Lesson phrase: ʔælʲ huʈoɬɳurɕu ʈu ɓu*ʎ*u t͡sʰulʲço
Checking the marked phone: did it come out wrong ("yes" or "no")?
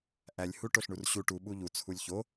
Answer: no